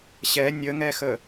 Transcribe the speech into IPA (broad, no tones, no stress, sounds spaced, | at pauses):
ɕ ɛ nʲ ə ŋ ɛ x ə